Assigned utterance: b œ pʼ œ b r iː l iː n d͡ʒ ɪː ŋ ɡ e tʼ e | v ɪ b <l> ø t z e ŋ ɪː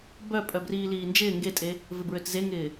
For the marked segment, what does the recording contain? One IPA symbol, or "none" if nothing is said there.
ɹ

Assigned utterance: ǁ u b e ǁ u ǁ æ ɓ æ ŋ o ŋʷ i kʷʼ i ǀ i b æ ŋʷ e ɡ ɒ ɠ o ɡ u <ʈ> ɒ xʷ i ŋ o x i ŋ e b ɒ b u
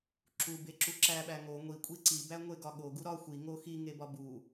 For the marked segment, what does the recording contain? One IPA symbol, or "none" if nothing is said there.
ɾ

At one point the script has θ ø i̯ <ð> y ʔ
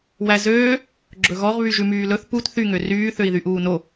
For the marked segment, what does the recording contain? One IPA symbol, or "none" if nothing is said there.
ð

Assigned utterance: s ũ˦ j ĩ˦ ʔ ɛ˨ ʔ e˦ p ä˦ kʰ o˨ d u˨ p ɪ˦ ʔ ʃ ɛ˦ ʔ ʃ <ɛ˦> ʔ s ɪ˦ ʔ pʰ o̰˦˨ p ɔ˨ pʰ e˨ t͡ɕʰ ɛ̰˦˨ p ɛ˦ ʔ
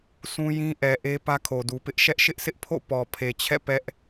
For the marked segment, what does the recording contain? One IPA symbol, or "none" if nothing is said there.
ɪ˦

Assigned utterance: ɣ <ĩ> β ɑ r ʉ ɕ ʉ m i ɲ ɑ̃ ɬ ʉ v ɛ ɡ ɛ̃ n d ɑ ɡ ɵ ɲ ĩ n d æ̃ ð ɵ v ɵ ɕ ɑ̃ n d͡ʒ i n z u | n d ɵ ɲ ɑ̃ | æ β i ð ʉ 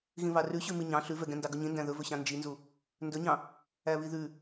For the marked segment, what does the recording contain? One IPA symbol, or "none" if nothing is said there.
ĩ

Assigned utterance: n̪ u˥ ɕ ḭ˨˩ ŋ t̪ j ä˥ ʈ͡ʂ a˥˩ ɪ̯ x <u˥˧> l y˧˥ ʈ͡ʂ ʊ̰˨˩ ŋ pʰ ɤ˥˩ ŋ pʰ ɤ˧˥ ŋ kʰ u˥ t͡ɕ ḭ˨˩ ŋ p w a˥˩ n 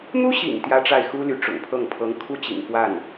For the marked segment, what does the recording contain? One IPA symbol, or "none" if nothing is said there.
u˥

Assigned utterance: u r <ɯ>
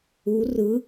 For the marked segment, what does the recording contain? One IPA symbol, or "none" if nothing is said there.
ɯ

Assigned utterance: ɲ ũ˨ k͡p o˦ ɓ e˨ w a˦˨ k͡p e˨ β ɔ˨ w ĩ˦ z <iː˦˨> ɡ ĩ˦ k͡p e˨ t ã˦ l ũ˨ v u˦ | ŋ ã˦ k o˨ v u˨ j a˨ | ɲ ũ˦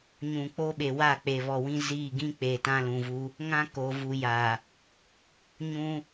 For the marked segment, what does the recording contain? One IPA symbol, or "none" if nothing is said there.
iː˦˨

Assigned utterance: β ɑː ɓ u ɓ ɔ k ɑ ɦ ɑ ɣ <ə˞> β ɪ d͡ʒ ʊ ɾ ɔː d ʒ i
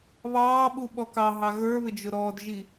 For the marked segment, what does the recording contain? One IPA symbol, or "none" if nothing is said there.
ə˞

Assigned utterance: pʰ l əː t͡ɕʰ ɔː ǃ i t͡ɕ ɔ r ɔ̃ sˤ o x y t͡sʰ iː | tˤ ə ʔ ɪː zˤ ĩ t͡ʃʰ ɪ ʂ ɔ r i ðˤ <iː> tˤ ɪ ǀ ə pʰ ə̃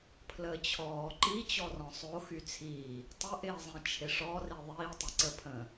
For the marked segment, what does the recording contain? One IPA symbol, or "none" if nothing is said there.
iː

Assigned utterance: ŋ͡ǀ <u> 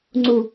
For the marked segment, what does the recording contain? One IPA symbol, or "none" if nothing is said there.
u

